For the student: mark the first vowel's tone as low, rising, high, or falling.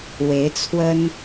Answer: rising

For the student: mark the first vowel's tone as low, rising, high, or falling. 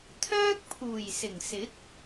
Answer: high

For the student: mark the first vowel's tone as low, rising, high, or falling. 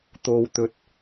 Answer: low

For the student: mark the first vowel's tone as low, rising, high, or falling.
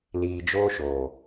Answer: low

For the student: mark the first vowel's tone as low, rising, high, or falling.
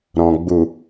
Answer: low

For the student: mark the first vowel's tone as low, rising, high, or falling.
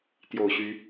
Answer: low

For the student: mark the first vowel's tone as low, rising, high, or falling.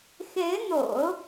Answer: rising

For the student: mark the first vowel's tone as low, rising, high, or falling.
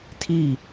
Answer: falling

